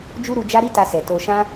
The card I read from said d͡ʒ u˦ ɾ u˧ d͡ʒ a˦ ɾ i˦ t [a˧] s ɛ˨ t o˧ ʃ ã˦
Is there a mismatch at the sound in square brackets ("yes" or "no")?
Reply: no